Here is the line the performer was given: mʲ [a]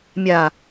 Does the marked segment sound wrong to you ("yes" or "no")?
no